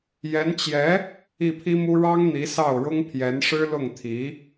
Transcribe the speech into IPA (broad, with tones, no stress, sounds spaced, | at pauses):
j ɛ˧˥ n t͡ɕ j ɛ˧˥ | i˥˩ pʰ i˥ m u˥ ɻ ɑ˥ ŋ n̪ i˧˥ s ɑ˥˩ ʊ̯ ɻ ʊ˥ ŋ pʰ j ɛ˧˥ n ʂ ɻ̩˥ l ʊ˥˩ ŋ t̪ʰ i˧˥